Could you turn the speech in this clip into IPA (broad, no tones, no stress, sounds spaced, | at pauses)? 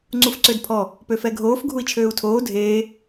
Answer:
ŋ͡ǀ u f ǀ ø d pʰ ɔ | p ø f ɛ ɡʱ oː f ɡʱ u i̯ t͡ʃʰ øː u̯ tʰ oː dʱ eː